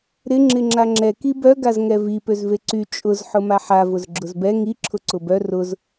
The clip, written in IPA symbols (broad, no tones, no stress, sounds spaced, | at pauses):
ɾ ɪ ŋ͡ǁ ɪ ŋ͡ǁ a ŋ͡ǁ ɛ k i b œ ɡ a z ŋ ɛ v i p ø z v e ǀ y t͡ʃʼ ʊ z ħ ʊ m a ħ a v ʊ z ɡ͡ǁ ʊ z b ɛ ŋ i ǁʰ ʊ ǀ ʊ b œ r ʊ z